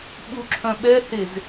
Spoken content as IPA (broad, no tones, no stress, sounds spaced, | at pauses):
ɓ u ǁʰ œ̃ ɓ ɛ h e z